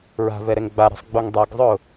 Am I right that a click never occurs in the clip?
yes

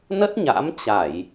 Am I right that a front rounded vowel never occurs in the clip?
yes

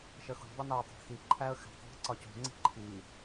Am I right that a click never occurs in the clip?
no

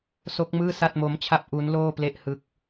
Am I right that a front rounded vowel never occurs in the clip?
yes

